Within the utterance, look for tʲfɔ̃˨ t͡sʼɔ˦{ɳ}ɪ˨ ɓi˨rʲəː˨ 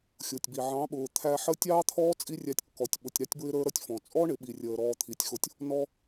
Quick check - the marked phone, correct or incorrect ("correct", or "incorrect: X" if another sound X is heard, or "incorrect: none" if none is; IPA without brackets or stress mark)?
correct